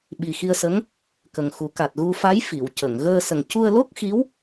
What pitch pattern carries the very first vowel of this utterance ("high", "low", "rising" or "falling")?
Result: low